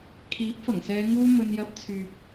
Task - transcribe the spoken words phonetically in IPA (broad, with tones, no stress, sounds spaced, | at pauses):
kʰ iː˨˥ p̚ f ɐ˨˩ ŋ s ɛː˨˧ ŋ uː˧ m ɵ˧ n j ɐ˨˥ p̚ t͡sʰ yː˨ p̚